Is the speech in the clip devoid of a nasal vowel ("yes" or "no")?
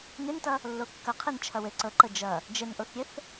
yes